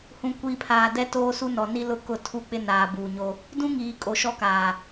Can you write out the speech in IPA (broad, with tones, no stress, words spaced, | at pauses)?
hũ˨kʷiː˨pʰaː˨ dɛ˦toː˦su˦ nɔ˨ni˦lʊ˦ kʊ˦˨ tʰu˦k͡pɪ˦naː˨ buː˨ɲo˦ | dũ˦ ŋiː˨ kʼo˨ʃɔ˦kaː˨